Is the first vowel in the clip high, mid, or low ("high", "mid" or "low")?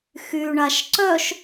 high